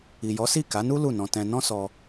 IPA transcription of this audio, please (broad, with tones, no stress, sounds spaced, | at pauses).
i˨ j ɔ˨˦ s i˦˨ k a˨˦ n u˦ l u˦˨ n ɔ̃˧ t ɛ̃˧ n ɔ̃˦ s ɔ˧